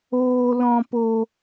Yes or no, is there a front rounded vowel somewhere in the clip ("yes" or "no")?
no